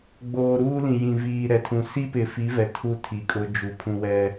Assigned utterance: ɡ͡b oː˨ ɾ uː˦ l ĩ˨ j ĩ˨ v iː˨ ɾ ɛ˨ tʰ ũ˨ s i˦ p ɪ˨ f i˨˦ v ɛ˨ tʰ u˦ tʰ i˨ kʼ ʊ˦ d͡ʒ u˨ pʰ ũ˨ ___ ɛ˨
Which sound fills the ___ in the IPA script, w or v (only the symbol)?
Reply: w